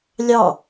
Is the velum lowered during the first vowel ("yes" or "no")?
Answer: no